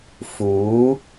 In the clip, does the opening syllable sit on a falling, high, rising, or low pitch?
rising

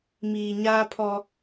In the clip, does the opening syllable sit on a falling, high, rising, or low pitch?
low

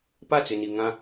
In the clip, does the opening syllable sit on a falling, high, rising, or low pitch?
falling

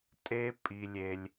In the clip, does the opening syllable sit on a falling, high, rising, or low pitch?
high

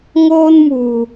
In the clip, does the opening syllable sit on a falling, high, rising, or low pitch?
high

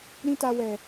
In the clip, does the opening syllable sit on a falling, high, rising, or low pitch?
high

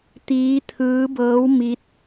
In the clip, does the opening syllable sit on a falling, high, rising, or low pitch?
rising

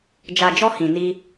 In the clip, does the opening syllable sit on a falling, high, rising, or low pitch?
low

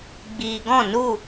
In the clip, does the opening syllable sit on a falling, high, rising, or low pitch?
low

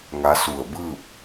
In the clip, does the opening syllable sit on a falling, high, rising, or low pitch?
rising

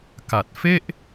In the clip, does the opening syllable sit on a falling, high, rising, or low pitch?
low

